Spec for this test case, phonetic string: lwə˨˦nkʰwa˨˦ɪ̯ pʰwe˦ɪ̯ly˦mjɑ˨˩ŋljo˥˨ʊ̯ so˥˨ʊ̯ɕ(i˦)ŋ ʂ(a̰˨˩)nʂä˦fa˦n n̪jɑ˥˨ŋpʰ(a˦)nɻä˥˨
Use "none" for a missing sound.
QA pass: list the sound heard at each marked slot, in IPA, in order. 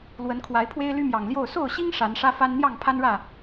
i˦, a˨˦, a˦

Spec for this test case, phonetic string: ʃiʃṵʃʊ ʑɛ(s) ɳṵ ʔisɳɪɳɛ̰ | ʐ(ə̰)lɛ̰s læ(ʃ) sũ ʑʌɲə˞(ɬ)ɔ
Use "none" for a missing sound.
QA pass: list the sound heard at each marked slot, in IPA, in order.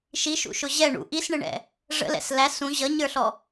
none, ə̰, none, ɬ

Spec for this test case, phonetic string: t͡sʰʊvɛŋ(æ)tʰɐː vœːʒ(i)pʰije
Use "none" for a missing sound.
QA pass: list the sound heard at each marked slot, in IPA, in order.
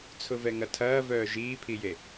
ɐ, iː

